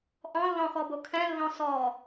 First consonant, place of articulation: glottal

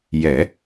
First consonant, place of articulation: palatal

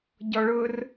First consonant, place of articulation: palatal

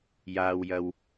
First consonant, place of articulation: palatal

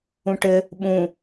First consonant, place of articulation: retroflex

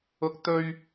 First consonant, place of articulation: velar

